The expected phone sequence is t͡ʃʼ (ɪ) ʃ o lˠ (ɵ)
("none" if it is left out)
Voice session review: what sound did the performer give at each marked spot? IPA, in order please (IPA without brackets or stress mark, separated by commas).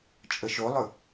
ə, ɵ